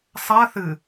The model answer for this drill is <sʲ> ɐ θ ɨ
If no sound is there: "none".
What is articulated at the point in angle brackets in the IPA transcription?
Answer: sˤ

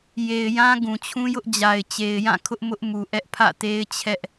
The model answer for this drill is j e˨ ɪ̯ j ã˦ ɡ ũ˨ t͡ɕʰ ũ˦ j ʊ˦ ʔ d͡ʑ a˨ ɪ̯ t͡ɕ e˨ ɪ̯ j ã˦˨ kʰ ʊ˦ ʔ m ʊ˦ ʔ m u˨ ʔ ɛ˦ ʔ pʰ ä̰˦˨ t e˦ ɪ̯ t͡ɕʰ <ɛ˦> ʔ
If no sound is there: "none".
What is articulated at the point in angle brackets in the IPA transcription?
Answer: ɛ˦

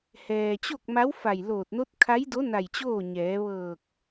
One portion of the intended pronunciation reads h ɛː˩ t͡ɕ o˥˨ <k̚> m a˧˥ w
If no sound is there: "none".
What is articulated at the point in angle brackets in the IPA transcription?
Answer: k̚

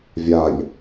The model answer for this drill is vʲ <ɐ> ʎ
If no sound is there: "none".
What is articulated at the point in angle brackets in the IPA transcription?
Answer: a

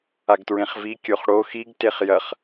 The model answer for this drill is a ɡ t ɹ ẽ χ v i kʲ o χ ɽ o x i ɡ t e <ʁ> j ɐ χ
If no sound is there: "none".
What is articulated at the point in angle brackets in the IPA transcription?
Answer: χ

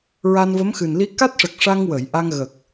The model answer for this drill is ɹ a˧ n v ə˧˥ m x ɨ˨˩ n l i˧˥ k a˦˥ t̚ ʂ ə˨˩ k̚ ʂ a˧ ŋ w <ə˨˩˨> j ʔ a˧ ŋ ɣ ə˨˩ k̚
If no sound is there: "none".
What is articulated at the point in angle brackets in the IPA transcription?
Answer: ə˨˩˨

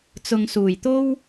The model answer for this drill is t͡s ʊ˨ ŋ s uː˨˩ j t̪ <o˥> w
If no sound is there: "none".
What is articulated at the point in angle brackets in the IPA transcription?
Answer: o˥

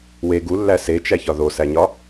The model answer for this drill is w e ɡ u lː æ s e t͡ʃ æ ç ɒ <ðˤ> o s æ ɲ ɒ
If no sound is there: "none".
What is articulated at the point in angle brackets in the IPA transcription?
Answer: ð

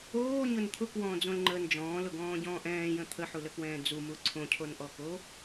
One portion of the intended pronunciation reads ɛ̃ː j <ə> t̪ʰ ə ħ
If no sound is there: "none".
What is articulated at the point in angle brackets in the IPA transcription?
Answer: ə̃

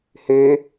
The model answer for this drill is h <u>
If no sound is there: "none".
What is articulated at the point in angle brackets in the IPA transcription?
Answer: ø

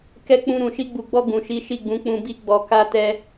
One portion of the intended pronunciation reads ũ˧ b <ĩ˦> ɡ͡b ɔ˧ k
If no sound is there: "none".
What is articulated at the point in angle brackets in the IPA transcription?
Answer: i˦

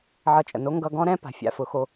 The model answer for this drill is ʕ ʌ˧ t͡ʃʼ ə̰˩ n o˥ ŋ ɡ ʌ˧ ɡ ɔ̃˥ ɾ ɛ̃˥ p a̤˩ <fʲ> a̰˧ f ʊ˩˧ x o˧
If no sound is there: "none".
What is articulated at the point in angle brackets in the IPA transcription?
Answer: fʲ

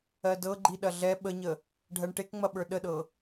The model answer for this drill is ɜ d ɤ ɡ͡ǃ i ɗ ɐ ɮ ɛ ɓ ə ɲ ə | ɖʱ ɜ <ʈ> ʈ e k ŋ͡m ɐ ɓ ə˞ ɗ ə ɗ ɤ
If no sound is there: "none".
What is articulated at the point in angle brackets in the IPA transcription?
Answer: ɳ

